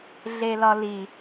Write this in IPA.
ɮ e l ɒ l i

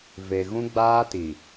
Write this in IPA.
v e˨ ɣ ũ˦ ɡ͡b aː˦ t i˨

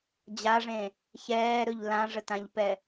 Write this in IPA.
d͡ʑ a ʐ ẽ | ç ɛː ɾ ɵ ʎ l ã ʐ ə t ã ʎ p ɛ

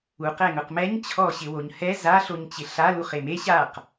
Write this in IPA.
u q ɛ ŋ ʊ q m ɛ ɲ t͡ɕʰ ɔ ɕ ɪ w o ɲ h ɛ z a ɬ o ɲ t͡ɕ ɪ ɬ a l u χ e m e ɕ a q

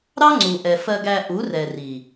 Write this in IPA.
ɾ ɑ˦ ŋ͡ǀ u˨ ʔ ɛ˨ f ɜ˧ ɡ æ˧ ʔ u˨˦ r ɛ˨ r i˨

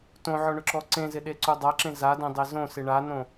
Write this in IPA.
t õ ʕ ɔ ɳ ʊ ǁ ɔ ǀ ẽ z ɪ ɗ e ǀ u dˤ a ǁ ẽ z a d ẽ dˤ e z õ s ɪ ɳ a n õ

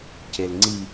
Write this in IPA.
c e l ŋ͡ǀ i

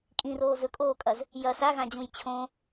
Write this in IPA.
kʼ ĩ r oː z ɵ kʼ oː kʼ ɐ z | j ɐ s a ɣ ã d͡ʑ ũ j t͡ɕʰ õ

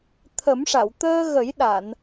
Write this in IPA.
t̪ʰ ə˨˩˦ m ʂ a˨˩˨ w t̪ əː˧ ɣ ə˨˩˦ j ɗ a˨˩˨ n

